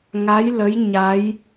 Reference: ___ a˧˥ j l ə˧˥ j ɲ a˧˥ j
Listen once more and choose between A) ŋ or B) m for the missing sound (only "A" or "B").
A